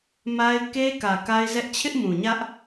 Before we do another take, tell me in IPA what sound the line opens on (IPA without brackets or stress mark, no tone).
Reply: m